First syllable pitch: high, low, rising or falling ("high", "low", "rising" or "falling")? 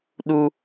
high